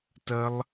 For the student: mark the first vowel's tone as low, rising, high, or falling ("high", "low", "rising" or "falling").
high